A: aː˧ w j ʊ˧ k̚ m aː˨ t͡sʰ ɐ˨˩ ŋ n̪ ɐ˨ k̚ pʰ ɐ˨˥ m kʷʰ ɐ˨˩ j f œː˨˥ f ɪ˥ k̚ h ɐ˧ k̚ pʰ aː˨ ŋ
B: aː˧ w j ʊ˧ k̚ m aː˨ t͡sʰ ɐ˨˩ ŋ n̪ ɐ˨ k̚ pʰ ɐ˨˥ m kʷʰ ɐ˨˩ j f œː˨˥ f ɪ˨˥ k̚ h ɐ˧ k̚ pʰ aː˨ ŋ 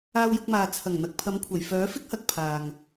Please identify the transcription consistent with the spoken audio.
A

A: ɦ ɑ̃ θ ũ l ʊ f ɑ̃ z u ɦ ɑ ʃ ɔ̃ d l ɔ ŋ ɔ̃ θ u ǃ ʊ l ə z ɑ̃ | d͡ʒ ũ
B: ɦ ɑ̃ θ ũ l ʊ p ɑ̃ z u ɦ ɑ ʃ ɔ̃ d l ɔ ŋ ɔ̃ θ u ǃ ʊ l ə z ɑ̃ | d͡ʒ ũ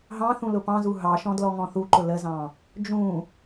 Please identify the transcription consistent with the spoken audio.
B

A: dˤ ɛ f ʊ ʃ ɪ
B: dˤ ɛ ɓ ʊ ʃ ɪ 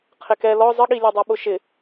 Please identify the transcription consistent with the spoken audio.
B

